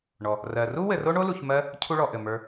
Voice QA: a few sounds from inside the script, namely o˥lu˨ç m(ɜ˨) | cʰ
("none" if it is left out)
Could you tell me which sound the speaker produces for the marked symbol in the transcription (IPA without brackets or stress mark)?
ɜ˥